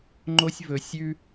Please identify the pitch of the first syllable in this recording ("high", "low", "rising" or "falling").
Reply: high